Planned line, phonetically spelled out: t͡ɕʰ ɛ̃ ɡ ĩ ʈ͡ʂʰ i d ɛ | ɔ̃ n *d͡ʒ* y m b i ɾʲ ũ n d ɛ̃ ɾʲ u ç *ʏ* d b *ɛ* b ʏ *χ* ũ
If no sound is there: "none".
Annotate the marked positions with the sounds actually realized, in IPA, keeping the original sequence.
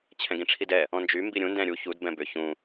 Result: d͡ʒ, u, ɛ̃, ç

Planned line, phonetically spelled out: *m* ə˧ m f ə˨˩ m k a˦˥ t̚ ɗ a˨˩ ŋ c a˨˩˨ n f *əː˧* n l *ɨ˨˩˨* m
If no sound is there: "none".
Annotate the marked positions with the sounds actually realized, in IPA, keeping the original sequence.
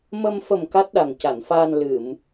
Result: m, aː˧, ɨ˨˩˨

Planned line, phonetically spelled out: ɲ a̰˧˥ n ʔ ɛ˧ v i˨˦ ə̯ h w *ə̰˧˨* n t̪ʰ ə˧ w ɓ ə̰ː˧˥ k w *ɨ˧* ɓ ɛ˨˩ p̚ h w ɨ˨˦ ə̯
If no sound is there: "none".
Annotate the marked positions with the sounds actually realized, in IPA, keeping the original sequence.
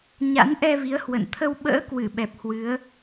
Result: ə̰˧˨, ɨ˧˩

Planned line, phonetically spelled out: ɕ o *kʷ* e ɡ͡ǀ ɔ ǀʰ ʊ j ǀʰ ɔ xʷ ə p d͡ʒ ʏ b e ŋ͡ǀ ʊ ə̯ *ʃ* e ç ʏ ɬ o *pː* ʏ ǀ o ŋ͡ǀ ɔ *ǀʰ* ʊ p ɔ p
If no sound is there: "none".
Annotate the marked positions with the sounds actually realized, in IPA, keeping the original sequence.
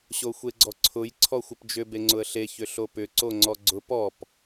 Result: xʷ, ɬ, p, ɡ͡ǀ

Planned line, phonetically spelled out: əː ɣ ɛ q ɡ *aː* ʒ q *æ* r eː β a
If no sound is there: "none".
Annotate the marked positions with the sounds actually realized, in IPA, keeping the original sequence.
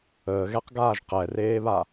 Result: aː, ɛ

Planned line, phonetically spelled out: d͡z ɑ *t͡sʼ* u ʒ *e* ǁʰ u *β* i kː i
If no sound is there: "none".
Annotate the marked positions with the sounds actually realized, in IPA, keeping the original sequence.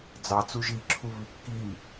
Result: t͡s, i, β

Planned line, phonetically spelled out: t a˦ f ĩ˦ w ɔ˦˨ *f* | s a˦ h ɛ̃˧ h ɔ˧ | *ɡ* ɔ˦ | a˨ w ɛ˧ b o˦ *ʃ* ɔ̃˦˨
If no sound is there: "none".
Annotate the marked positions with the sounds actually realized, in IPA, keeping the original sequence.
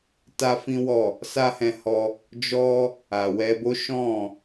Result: none, d͡ʒ, ʃ

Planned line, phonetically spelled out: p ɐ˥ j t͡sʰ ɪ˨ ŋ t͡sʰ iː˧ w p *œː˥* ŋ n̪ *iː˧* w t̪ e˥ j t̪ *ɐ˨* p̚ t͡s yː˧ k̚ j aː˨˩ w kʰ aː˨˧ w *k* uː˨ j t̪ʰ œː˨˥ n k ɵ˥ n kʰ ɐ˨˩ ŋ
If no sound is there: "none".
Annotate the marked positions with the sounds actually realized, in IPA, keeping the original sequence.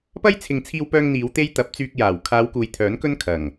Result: œː˧, iː˨˧, ɐ˨˥, k

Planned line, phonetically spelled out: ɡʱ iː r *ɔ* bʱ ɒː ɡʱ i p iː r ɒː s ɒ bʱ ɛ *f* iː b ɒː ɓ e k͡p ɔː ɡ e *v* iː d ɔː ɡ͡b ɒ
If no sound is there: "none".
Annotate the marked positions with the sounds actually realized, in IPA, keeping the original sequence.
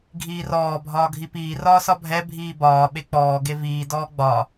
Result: ɔː, bʱ, v

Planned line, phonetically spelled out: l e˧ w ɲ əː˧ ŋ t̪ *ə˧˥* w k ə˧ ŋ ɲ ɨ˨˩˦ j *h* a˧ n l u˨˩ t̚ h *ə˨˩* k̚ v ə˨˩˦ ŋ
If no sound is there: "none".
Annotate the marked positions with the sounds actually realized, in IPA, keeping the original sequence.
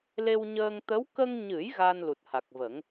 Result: ə˧˥, ɣ, a˨˩

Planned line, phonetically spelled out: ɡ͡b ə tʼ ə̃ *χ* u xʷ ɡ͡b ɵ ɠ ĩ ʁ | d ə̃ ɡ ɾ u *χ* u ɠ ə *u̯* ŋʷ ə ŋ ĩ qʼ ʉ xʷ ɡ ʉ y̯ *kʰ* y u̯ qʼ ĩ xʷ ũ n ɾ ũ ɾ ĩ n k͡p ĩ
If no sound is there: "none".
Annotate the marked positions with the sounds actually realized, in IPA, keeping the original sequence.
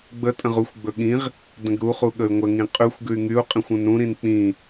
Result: ʁ, χ, y̯, ŋ

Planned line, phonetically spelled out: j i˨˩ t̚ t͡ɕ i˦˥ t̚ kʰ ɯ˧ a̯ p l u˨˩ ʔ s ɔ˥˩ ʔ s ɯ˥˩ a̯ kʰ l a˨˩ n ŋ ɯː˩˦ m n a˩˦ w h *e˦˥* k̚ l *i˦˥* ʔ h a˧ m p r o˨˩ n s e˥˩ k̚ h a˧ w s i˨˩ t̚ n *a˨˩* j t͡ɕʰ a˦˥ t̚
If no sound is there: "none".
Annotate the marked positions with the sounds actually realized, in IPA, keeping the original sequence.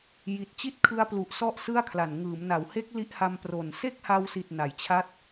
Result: e˦˥, i˦˥, a˩˦

